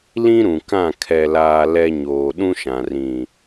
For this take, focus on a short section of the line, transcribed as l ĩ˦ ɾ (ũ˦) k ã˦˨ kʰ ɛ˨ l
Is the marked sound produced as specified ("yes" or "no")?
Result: no